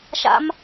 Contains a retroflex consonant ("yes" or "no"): no